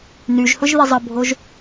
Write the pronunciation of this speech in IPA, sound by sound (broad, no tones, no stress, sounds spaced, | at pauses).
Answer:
n y ʒ h ʊ ʒ ð i zˤ ə bʱ o ʒ